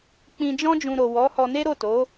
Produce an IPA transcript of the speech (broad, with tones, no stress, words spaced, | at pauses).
k͡pĩ˧d͡ʒɔ̃˦d͡ʒũ˧ ɾo˨ wɔ˨˦hɔ˧ne˦ ɾo˦˨to˨˦